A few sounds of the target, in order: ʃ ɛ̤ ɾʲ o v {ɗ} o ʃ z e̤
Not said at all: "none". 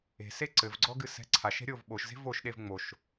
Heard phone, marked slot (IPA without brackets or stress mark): ɓ